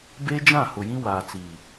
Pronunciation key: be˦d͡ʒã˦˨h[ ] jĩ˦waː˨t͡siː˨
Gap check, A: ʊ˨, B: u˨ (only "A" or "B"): A